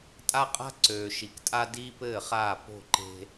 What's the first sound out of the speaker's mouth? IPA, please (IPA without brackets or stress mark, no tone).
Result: tʼ